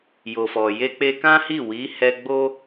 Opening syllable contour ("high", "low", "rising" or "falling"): low